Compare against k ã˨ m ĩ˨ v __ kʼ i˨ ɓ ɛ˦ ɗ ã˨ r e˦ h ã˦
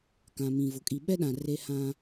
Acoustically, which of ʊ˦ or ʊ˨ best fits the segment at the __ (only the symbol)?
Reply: ʊ˨